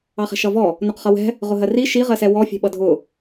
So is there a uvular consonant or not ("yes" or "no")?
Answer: yes